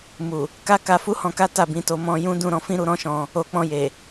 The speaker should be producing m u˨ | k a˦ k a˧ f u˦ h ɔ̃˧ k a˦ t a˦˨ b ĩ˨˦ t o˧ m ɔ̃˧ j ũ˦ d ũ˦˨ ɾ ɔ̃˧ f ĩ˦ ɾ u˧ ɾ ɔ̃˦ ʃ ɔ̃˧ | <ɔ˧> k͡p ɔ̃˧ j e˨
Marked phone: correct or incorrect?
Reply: incorrect